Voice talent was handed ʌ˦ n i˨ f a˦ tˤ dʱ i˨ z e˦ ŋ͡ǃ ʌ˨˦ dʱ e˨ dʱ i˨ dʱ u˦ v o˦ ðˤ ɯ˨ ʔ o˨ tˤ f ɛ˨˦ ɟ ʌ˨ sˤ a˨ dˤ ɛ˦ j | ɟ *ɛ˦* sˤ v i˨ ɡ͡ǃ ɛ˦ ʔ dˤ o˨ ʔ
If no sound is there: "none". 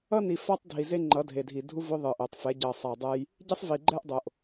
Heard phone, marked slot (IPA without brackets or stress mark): ɛ˦